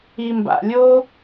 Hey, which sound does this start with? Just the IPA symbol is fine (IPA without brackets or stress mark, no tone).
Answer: i